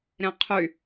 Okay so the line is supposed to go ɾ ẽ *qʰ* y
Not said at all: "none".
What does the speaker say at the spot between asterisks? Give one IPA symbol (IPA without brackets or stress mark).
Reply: qʰ